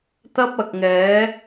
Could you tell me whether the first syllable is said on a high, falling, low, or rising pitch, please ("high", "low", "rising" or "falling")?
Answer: high